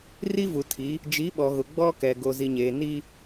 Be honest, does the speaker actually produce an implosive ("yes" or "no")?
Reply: yes